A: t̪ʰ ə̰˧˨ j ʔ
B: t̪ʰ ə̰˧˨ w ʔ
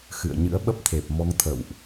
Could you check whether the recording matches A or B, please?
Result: B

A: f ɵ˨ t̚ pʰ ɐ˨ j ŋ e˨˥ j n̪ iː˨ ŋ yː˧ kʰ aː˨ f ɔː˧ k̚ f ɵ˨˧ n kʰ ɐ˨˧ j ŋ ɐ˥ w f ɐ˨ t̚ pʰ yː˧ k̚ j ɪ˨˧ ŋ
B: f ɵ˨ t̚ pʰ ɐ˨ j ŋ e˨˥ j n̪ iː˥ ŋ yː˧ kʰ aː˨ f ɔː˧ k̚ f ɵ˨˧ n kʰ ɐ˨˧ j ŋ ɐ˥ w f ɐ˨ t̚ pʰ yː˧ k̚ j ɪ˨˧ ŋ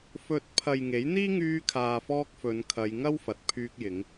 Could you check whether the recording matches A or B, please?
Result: B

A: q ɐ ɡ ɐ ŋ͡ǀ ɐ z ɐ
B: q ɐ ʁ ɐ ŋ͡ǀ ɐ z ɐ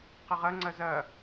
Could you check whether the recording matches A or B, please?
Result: B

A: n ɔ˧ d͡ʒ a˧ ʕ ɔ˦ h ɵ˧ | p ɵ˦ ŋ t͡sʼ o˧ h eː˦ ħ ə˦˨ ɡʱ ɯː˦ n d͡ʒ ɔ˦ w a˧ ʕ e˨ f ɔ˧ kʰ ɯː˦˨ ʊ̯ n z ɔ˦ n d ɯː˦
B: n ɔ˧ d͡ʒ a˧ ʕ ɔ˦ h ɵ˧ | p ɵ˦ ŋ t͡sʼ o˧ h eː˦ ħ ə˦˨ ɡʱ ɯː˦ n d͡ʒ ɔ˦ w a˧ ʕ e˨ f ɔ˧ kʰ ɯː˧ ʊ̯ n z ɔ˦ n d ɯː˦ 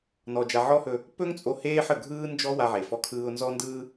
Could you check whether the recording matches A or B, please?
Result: B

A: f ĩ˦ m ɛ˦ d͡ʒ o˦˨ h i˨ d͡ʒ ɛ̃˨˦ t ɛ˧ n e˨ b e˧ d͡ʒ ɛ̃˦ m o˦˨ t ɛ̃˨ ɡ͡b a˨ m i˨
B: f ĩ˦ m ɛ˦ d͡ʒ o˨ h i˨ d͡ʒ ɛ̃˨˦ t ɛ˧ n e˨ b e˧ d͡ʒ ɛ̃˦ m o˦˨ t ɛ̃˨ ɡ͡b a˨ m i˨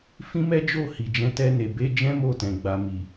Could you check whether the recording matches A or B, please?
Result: A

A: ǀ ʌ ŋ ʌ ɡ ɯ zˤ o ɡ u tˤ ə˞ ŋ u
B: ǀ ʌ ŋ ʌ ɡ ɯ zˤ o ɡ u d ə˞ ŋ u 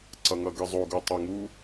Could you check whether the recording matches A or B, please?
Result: A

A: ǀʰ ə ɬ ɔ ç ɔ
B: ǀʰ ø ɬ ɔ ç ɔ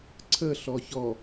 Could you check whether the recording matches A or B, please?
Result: A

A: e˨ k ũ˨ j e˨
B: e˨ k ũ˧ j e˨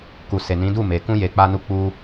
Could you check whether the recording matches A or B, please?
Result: B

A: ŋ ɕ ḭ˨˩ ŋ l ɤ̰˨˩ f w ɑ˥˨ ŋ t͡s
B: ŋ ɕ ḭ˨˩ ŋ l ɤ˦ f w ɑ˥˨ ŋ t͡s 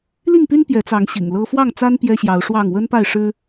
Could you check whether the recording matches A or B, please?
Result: B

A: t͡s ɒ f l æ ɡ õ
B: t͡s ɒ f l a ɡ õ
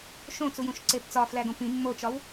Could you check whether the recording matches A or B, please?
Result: A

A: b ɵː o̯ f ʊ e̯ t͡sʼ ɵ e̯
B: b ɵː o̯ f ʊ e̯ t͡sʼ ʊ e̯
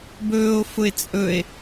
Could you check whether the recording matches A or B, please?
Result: A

